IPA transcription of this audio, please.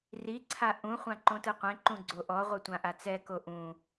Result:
r i ǀʰ a ʔ ũ χʷ ã ǃ õ t ɯ qʷ ẽ ǃ ũ ɡ͡ǀ o ʔ ɔ ʁʷ ɯ tʷ ã ʔ a t͡s ɛ k o ʔ ũ

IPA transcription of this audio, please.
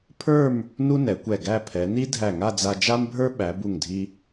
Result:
pʰ ə˞˥˧ m | n u˥ n ɛ˩˧ kʷ ɛ˧˩ ɡ æ˥˧ pʰ ɛ˩˧ n i˥ dʱ æ˧˩ ŋ a˥˧ d͡z a˧ d͡ʒ a˥ m bʱ ə˞˥ ɓ æ˩˧ b u˧˩ ŋ dʱ i˧

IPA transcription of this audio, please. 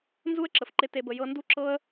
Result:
n z u˦ ə̯ ǁ ə˨ f ǃ ɪ˧ t e˧ b ə˧ j ɤ˧ n d u˦ ǁ ɤ˦ ə̯

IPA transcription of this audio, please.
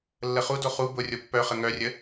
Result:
lː ə χ u d o χ u b ʊ rʲ o pː œ χ ə ŋ œ rʲ ə

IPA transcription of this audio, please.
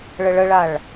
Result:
ɭ ə ɭ ə ɭ a ɭ

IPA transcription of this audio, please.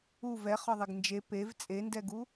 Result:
u v ɛ χ ɒ ðˤ e ɡ n d͡ʒ e p e v t͡sʼ e n d ɛ ɡ u

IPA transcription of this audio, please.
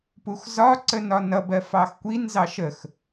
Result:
p u x z ɒ ǀ ə n ɒ n ʌ b ɜ f ɑ x kʷ i n z ɑ ʃ ə x

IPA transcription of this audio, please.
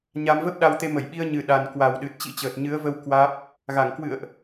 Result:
ɲ a˧ m v ə˦˥ p̚ ɗ a˧ w t̪ e˧ m ə˧˩ j ɓ i˧ ə̯ ɲ ɨ˨˩ ɗ a˨˩ n k w a˨˩ w ɗ ɨ˨˩ t̚ t͡ɕ ḭ˧˥ t͡ɕ əː˨˩ t̚ ɲ ɨ˨˦ ə̯ v ə˧ w k w aː˦˥ p̚ | ɣ a˧˩ ŋ k w ɨ̰˧˨ ə̯ ʔ

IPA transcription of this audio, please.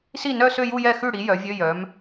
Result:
s i˥˩ n œ˥˧ s ø˥˧ j u˥˧ j ɛ˥˩ x ʉ˥˩ ɽ i˩˥ j œ˩˥ vʲ ø˧˥˧ j œ˩˥ m

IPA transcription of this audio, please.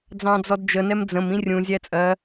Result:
d͡z ɑ̃ d͡z ɔ d d͡ʒ ə n ɛ m d͡z ə̃ m ĩ rʲ ũ zʲ æ t͡sʼ ɜ

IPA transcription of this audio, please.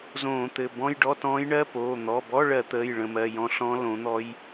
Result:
z õː˧˩˧ t̪ ɘ˩˧˩ b ɔ̃˧˥˧ j ɖ ɔ˧˥˧ t ɔ̃ː˧˥ j ɳ ɜ˧˥˧ p oː˩˧˩ n̪ ɔ˩˧˩ b ɔ˧˥˧ ɭ ɜ˧˩˧ t̪ əː˩˧˩ j ɭ ə̃˧˩˧ m ɜ˩˧˩ j ɔ̃˧˥ ɬ ɔ̃˧˥ l õ˩˥ n̪ ɔ˧˥ j

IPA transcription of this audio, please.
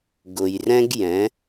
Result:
ɡ ʊ˩ j r ɛ̃˧ ɡ j ɛ̃˩˧

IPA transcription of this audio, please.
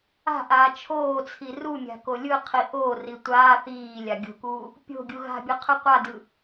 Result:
a̤ ʔ aː t͡ʃʰ oː t͡sʰ i r u mʲ a̤ k o lʲ ɯ qʰ i ʔ o r i tʷ aː θ iː lʲ a ɡʲ o̤ k uː | pʲ o̤ ɡʲ u ɣ a̤ bʲ ɯ qʰ ɯ qʷ a d ɯ

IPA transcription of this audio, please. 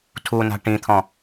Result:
tʰ u n a̤ ʈ ĩ t̪ʰ ɔ̃

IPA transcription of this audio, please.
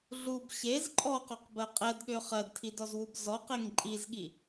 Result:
ɮ u b ɕ e z ǃʼ ɔ q ɔ q b ɜ qʼ ɛ d ɠ ø χ ɜ d tʰ i d ɔ z w u b z ɔ q e ŋ ǃʼ i z ɠ i

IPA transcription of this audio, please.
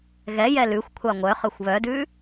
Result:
ɣ ɛ j ɛ l ʉ xʷ kʷʰ ɑ ŋʷ œ χ ɵ xʷ β œ d ʉ

